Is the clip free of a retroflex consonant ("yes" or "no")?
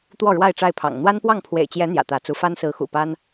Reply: no